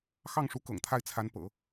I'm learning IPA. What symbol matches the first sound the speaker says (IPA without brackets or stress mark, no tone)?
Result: x